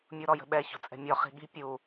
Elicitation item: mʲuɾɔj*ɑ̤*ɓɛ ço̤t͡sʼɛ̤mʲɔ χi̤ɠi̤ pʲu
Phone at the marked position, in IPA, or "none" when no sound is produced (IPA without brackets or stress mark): ə̤